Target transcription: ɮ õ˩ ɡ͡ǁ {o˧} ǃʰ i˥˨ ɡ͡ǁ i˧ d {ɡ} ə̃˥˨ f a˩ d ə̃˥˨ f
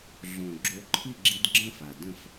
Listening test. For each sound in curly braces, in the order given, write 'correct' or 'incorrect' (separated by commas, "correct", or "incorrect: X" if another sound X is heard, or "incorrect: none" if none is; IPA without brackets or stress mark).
correct, incorrect: ɡ͡ǁ